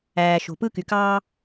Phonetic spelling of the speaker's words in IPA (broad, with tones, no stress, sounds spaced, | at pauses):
æː˩ ʃ o̤˩ p ɯ˥ k y˩ k ɑː˥